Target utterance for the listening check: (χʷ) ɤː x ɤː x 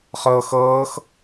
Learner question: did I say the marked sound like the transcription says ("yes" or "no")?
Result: no